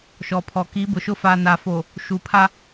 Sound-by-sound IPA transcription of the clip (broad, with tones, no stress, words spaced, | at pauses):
ʃɔ˨pʰɔ˨ ki˨˦bʊ˨ʃʊ˦ fa˨na˨fo˨ | ʃu˨ pʰa˦